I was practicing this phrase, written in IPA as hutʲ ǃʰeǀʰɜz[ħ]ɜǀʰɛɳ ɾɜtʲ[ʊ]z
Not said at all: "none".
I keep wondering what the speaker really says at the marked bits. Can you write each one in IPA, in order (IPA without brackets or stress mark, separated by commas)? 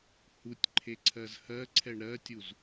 h, u